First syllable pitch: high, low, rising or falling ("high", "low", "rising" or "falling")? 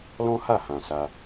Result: high